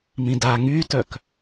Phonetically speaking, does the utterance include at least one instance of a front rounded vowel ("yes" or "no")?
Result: yes